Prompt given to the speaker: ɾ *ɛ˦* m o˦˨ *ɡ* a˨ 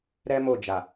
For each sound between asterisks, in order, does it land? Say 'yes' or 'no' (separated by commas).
yes, no